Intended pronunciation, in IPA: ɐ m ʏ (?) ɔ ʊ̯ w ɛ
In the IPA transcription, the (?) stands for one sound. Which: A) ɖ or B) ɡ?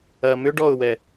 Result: A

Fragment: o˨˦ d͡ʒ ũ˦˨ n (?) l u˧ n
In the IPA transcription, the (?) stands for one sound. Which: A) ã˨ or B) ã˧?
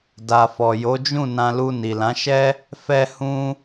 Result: B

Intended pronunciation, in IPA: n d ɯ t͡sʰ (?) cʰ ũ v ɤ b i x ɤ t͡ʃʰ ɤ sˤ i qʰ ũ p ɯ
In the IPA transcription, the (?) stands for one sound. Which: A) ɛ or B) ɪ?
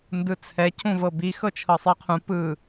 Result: A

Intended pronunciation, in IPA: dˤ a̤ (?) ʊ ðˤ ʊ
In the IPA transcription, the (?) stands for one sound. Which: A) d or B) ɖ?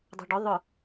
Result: B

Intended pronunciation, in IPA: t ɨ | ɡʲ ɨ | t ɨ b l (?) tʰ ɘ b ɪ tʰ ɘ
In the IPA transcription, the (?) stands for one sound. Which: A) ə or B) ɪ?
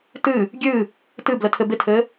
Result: A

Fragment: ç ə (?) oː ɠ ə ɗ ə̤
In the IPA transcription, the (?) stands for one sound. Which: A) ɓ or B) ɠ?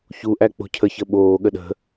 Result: A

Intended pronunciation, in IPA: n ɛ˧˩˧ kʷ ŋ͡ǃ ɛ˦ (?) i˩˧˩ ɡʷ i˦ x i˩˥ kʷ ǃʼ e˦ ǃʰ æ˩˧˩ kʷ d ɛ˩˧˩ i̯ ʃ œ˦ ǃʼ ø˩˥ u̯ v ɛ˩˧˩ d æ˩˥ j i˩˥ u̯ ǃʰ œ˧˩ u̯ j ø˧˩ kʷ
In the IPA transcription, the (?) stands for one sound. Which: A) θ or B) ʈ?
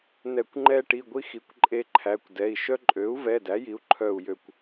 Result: B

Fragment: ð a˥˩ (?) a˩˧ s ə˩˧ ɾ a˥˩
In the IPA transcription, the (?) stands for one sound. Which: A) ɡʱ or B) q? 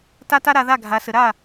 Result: A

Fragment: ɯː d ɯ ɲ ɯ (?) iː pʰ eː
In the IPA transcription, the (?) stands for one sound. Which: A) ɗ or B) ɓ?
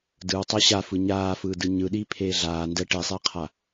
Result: A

